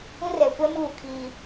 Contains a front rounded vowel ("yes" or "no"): no